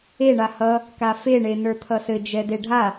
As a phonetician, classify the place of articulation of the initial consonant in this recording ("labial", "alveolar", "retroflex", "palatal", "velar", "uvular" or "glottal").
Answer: retroflex